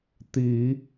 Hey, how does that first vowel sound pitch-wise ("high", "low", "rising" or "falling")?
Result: low